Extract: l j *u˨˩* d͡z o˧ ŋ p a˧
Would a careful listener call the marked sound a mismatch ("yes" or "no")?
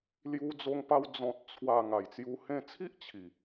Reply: yes